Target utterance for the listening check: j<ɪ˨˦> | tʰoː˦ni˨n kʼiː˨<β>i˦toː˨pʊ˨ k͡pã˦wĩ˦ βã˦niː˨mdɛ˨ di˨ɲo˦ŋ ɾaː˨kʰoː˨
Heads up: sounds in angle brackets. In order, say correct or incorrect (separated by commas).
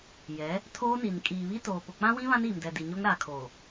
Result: incorrect, correct